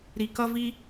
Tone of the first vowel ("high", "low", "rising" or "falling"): low